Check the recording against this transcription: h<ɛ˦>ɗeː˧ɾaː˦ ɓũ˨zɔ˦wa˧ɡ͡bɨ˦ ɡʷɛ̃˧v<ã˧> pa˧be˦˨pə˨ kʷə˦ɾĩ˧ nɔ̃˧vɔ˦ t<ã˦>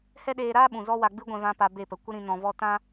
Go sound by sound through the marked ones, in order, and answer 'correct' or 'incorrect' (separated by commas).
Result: correct, correct, correct